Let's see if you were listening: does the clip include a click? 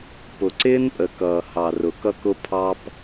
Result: yes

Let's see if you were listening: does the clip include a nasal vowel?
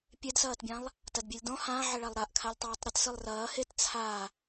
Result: yes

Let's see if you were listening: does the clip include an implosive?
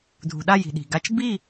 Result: yes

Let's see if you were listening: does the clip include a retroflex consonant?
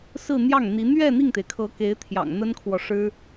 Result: yes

